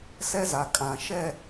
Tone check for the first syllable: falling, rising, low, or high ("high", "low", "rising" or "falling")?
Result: high